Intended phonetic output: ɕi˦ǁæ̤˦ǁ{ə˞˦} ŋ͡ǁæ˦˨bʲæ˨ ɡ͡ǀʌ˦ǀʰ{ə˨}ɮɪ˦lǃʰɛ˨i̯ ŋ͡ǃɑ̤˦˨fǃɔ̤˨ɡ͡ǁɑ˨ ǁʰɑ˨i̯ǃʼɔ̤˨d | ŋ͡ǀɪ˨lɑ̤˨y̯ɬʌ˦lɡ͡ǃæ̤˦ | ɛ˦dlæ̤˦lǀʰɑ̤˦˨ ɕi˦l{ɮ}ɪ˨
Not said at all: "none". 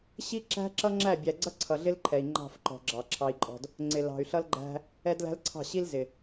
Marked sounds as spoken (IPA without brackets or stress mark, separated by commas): ʌ˦, ʌ˨, z